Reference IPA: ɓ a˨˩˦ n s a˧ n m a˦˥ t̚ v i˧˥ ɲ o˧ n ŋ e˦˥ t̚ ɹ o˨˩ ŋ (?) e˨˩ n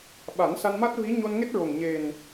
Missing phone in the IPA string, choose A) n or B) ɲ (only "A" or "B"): B